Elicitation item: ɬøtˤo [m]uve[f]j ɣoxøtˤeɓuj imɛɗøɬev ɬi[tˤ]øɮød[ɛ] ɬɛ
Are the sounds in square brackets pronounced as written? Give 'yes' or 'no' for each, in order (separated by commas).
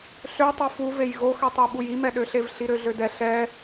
no, no, no, yes